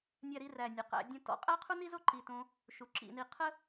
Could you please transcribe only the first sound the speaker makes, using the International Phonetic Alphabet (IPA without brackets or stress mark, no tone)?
nʲ